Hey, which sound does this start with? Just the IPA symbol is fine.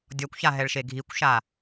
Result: dʲ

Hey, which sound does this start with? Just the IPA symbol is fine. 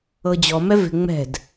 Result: ɤ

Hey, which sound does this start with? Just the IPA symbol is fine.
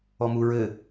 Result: ɔ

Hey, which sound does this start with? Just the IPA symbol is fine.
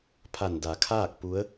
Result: pʰ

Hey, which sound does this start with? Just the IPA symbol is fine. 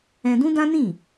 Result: ɛ̃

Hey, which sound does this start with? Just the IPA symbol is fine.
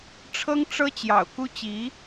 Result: ʈ͡ʂʰ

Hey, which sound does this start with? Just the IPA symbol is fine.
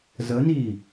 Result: z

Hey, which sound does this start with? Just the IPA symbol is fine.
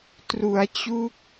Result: t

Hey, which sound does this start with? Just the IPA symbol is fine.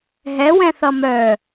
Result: ɦ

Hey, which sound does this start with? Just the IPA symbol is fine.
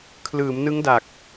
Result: kʰ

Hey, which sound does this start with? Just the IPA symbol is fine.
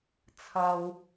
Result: t͡sʰ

